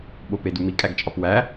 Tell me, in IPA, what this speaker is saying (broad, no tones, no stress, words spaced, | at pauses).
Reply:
ɓopedumi kʼæɡt͡ʃʼɒpwæ